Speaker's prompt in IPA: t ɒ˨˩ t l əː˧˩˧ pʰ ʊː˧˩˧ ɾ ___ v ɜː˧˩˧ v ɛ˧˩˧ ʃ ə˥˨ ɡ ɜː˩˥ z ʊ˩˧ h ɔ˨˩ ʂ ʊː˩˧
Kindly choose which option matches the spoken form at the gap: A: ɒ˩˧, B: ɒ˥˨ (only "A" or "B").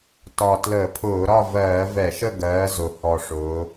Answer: B